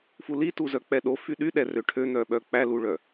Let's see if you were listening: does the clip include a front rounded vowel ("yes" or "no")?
yes